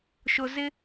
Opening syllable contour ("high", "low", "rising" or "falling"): low